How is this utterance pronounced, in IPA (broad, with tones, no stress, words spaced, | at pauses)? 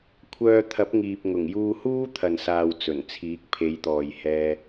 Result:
kʷʰœː˧t̪ʰɐ˨˥p̚ŋiː˨p̚ ŋʊ˨˩ŋjuː˧ huː˥t̪ʰɐ˨nsaː˨w t͡sɵ˨˩nt͡sʰiː˨˥k̚pʰe˨˧jt̪ɔː˨j hɛː˧